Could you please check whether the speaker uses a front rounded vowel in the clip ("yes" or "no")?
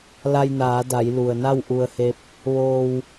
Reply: no